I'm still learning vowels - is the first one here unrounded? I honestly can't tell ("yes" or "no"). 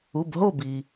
no